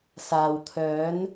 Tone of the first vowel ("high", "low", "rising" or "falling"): low